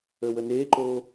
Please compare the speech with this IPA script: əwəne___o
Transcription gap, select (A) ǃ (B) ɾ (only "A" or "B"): A